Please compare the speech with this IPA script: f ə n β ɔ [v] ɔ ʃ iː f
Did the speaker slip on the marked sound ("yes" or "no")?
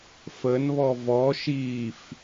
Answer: no